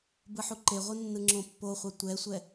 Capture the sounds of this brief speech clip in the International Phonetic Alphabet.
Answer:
b ɯ ħ u ǃ e ʁʷ ɯ nː ɯ ŋ͡ǁ õ pː o χʷ a tʷ ɛ sʷ ɛ

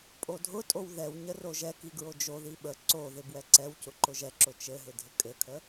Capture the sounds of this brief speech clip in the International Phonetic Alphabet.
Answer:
pʼ o dʱ ʊ tʼ o w ð ɛ w ɲ ə r o ʒ ɛ k i ɡ ɹ o d͡ʒ o ð i ɓ ə ǀ o ð ɪ b w ɛ ǀ ɛ w c ʊ ǃ ʊ ʒ ɛ ǁ ʊ t͡ʃ ɘ ɦ ɪ dʱ ɪ kʼ ɘ kʰ ə

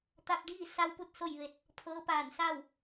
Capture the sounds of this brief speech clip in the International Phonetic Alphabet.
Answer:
t̪ a˧ p̚ d iː˥˨ s a˧ w p u˥˨ t̚ s o˥˨ j ʋ e˧ t̚ | pʰ ɤː˧˥ p aː˧˩ n s a˥˨ w

